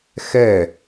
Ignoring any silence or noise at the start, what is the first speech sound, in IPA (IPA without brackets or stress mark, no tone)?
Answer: x